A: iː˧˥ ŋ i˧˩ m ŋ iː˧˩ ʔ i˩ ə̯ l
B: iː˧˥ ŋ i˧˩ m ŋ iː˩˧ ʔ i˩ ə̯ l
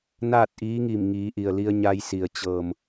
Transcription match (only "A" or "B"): B